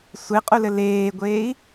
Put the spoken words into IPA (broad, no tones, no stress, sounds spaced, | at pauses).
sʷ e qʼ u l ɘ l eː ɡʷ eː i̯